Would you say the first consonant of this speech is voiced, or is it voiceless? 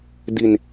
voiced